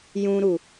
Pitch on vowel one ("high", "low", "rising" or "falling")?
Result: high